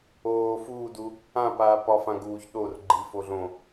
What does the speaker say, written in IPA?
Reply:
oː f uː d u | ã p aː p ɒ f ã ɡ uː ç ɗ o r ɡ͡ǃ i f o ɮ õ

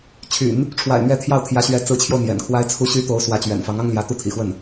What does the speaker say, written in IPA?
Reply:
t͡ɕʰ y̰˨˩˦ n | ʈ͡ʂʰ w a̰˨˩ ɪ̯ n̪ ɥ ɛ˧˥ t̪ʰ j ɑ˥˩ ʊ̯ t̪ʰ j ä˧˥ ɕ ɥ ɛ˧˥ t͡s ɹ̩˧˥ t͡ɕʰ j o˧ ʊ̯ n̪ j ɛ̰˨˩ n kʰ w a˥ ɪ̯ t͡sʰ u˥ ɕ y˥ t̪ o˧˥ ʊ̯ s w ä˧˥ t͡ɕ ɥ ɛ̰˨˩ n f ɑ˧˥ ŋ ɑ˥ ŋ l j ä˧˥ t̪ u˥˩ t̪ʰ ḭ˨˩ x w ə˥˩ n

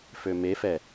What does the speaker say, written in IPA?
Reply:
f ø m e f ɛ

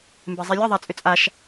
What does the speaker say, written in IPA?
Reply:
m b ɛ zˤ i lʲ ʌ ðˤ a t͡sʼ ʏ t͡sʼ a ʃ

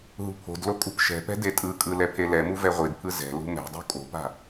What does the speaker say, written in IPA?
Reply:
ɦ ṳ pʰ o̤ d l o kʼ ṳ p ʃ ɛ̤ p ɛ̤ d e tʼ ɯ kʼ ɯ l ɛ pʰ e l ɛ m u v ɛ ʁʷ i d pʰ ɯ z ɛ̤ l ṳ m ɛ̤ dˤ ṳ kʼ o̤ p a̤

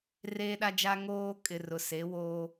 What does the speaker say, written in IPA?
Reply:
r eː˦ ɗ a˦ d͡ʒ a˦ ŋ oː˦ kʼ ɪ˨ r ʊ˨ s e˨˦ w oː˦

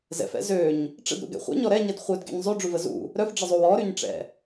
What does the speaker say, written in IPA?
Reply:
z ɛ̰ f ɛ̰ z ø ɲ | ʈ͡ʂ ə̰ d ɾ ṵ ɡ ɛ̰ χʷ ɛ̰ ɲ ɔ ɾ ɛ ɲ ɛ d χʷ œ d ɡ ɛ̰ ɲ zˤ y ɖ͡ʐ u v ə z ṵ | ɾ œ f ɖ͡ʐ ə zˤ u w ɔ ɾ y ɲ ʈ͡ʂ ɛ̰

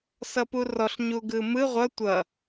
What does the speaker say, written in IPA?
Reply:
s ʌ p u r ɔ ɬ ɲ u ɡ ɯ m ɯ ʁʷ ʌ tʷ ʌ

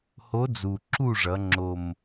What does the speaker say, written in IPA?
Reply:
h o˧˥ d͡z u˨˩ ǁ u˥˨ ʐ ʌ˩˧ ŋ͡ǁ o˨˩ m

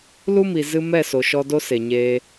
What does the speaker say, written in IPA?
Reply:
l u˦ m i˨ z ɨ˦ m ɛ˦˨ s o˨ ʃ ɔ˧ d o˦ s e˨ ɲ eː˧

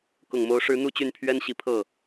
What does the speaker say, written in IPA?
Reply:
k ʊ˨˩ ŋ m o˧˥ ʊ̯ ʂ ɻ̩˧˥ n̪ u˥˧ t͡ɕ y˥˩ n pʰ ɥ ɛ˥ n ɕ i˧˥ pʰ ɤ˥˩

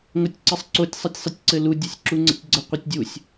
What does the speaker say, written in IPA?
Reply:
ŋ o tʲ ǀ ɘ sˤ ǀ o tʲ sˤ ɛ tʲ sˤ ɘ tʲ ǀ ɘ l u dʲ ɒ sʲ ǁ u ŋ͡ǀ ə̰ tʲ ɡ͡ǀ ə qʷ ɛ tʲ dʲ u sʲ

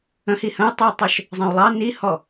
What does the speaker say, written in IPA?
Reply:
ə̃ h i h ə̃ u̯ tˤ ɨ y̯ tˤ œ ʃ | zˤ ə̃ u̯ lˠ ɑ n i h ɔ

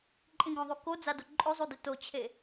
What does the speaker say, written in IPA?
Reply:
ǃʼ ĩ ɡ õ ðˤ u k o d͡z a d o ǃʼ ɵ zˤ u d ɨ t o t͡ɕʰ e

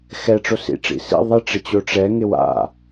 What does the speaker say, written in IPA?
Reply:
x ɛ ʈ͡ʂ o s ḭ ʈ͡ʂ ḭ s ḭ ðˤ ɪ ʈ͡ʂ ɪ t͡ɕ o ʈ͡ʂ ɛ ŋ ɪ w a̰

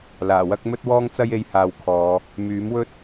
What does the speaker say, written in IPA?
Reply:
l aː˨˩ w ɐ˥ k̚ m ɵ˥ t̚ w ɔː˥ ŋ t͡s ɐ˥ j e˧ j h aː˧ w kʰ ɔː˨˧ | m yː˨˥ m w ɵ˥ t̚

